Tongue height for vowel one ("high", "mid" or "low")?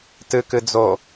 high